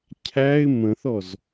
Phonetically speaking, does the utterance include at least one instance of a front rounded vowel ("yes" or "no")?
no